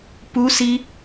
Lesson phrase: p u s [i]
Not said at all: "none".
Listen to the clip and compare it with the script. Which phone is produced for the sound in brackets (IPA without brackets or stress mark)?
i